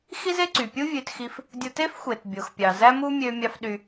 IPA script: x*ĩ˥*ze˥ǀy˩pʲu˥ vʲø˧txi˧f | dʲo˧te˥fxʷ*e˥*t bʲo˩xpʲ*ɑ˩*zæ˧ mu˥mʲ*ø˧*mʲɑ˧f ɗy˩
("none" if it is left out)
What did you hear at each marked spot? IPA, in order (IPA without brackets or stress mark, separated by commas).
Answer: i˥, e˩, ɑ˩, ø˧